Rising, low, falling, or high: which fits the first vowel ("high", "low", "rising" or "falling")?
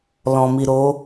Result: low